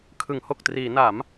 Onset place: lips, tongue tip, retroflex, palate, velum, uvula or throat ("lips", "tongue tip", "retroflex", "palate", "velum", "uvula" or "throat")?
velum